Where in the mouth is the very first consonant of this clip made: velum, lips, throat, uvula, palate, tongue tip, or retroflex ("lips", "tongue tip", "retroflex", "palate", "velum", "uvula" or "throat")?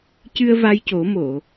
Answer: palate